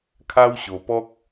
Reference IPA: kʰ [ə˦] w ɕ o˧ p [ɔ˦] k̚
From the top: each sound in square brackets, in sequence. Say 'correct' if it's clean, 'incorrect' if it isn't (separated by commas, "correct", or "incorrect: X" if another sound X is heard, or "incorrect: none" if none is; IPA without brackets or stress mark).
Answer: incorrect: a˦, correct